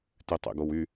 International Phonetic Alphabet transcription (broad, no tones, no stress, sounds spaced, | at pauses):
t y tˤ ḛ ɡ o w y